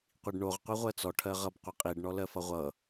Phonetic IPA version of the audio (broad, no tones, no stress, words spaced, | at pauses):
qʷiɖɳoʁ qʷiʁʷɜt͡sɔ ʈʰɜʁʌb qʷʌqʼiɖ ɳɔlɜfʌʁʷʌ